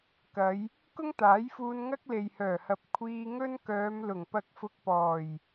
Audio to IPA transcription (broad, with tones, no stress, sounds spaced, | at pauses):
k ɐ˨˧ j | k ʊ˥ ŋ t̪ aː˨˥ j f uː˧ n ŋ ɐ˥ k̚ l e˨ j h œː˨˩ h ɐ˨ p̚ kʷʰ iː˧ ŋ ɵ˥ n k œː˨˧ m l ʊ˨˩ ŋ p ɐ˧ k̚ f ʊ˧ k̚ p ɔː˨˩ j